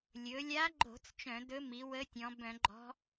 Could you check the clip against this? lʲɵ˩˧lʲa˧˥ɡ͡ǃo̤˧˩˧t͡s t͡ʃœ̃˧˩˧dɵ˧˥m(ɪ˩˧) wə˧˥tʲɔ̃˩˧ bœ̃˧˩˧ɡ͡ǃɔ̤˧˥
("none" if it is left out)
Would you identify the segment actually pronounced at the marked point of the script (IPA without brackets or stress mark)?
i˩˧